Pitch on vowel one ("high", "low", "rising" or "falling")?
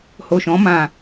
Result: low